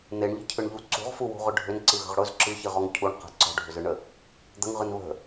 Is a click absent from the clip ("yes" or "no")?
no